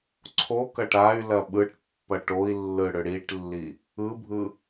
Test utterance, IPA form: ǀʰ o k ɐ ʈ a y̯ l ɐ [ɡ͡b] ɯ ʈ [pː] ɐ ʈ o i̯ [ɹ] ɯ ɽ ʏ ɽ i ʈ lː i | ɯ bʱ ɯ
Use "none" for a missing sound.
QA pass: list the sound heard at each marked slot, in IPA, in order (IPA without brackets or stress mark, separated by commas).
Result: ɓ, pː, lː